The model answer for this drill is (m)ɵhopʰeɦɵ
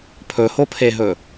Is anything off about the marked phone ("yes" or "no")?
yes